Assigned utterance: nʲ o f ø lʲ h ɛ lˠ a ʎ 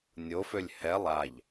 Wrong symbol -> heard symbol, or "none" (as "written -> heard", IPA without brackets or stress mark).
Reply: none